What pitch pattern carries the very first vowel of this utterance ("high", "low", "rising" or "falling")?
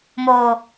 high